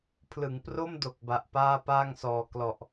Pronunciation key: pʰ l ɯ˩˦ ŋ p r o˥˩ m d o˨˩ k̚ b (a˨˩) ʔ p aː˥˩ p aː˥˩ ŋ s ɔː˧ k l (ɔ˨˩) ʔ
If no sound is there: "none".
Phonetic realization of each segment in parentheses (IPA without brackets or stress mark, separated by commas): a˨˩, ɔ˨˩